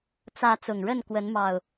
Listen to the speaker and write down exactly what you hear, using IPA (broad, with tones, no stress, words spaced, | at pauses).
t͡sä˨˦ t͡sʊ˨˩ŋɻə˥˨nkwə˨˦n mɑ˨˩ʊ̯